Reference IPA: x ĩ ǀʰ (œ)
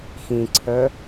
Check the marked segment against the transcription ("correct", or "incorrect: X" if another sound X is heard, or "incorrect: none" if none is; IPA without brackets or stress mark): correct